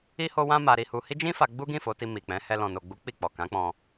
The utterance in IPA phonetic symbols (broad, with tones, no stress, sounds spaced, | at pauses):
i˦ h o˦ w ã˦ m a˧ ɾ i˧ h u˧ h i˦ d͡ʒ ĩ˦ f a˧ ɡ͡b u˦ ɡ ĩ˦˨ f o˨˦ t i˧ m i˨ k͡p ɛ̃˨˦ h ɛ˧ l ɔ̃˨ n o˨ ɡ͡b u˨˦ k͡p i˦˨ k͡p ɔ˨ k ã˨˦ k͡p ɔ̃˧